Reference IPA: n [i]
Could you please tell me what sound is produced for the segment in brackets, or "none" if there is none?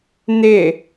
ɪ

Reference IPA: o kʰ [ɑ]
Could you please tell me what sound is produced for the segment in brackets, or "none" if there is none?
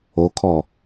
ɔ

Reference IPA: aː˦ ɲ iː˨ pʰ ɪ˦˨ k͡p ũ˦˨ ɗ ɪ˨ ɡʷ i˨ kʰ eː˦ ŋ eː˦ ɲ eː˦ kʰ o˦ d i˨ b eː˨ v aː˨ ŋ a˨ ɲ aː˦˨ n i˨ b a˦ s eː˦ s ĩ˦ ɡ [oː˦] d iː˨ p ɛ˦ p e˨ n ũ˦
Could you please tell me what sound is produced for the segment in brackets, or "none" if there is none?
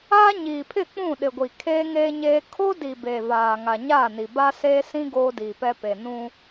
oː˦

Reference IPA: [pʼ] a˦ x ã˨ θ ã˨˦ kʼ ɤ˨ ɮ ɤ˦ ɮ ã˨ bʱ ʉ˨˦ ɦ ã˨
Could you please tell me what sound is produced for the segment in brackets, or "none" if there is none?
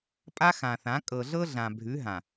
pʼ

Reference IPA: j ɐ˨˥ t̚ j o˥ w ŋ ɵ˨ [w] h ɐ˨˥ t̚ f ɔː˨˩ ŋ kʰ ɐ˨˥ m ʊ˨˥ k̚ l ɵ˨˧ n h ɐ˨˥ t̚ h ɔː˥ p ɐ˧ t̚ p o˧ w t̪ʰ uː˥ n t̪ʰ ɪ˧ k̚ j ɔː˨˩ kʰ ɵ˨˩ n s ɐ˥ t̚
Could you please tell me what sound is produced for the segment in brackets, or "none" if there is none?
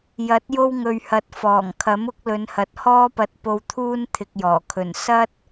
ɥ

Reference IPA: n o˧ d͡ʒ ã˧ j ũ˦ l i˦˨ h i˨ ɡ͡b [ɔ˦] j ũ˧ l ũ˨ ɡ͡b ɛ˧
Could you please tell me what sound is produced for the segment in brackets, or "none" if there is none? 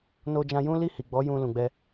ɔ˨˦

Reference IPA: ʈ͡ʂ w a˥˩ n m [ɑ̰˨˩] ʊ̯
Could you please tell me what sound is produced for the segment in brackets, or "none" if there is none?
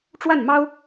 ɑ˥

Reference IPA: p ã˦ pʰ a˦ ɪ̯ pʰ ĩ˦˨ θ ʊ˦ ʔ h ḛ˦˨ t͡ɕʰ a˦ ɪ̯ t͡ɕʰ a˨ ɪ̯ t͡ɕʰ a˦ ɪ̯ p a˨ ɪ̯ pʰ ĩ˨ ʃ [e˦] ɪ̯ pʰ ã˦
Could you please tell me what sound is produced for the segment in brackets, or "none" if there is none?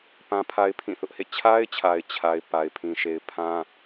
e˨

